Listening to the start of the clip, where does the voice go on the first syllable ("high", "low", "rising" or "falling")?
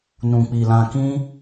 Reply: low